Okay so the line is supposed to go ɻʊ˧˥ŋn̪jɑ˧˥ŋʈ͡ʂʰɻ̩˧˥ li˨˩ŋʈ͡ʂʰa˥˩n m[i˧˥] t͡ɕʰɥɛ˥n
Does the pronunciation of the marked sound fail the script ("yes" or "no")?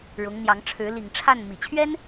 yes